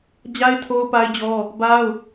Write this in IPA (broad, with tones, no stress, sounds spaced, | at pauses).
d͡ʑ a˦ ɪ̯ tʰ o˦ ʊ̯ p a˦ ɪ̯ d͡ʑ ɔ˦ | b a˦ ʊ̯